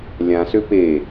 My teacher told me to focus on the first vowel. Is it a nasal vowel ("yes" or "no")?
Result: yes